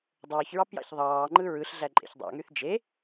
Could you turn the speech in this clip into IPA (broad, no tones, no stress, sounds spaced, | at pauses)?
dˤ oː ç ɹ ɑ p j ɑ̰ ç ðˤ ɑː ŋ͡ǃ ɯ ɹ ɯ ɬ ɮ æ ǃʼ ḛ ç dˤ ɑ̰ ŋ y θ d͡ʒ e